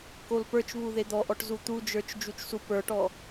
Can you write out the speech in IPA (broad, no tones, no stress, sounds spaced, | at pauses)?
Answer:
k o l p ə˞ t͡ʃ β u ð e d̪ ɔ ʔ ɔ ʈ z u t̪ u d͡ʒ ə˞ t͡ʃ d͡ʒ u t͡ʃ s u p ə˞ ʈ ɔ